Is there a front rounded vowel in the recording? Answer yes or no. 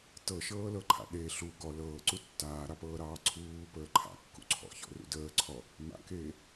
no